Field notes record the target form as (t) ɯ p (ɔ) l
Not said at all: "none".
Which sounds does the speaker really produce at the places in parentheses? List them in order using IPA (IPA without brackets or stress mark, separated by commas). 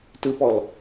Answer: t, ɔ